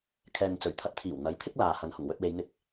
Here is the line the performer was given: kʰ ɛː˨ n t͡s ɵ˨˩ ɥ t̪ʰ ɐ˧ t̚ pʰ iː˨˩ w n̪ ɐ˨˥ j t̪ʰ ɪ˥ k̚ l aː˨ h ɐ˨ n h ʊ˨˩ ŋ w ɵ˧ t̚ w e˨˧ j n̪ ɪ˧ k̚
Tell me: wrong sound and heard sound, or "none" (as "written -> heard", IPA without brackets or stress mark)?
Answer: pʰ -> t̪ʰ